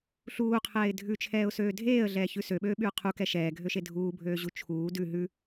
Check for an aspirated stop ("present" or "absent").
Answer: present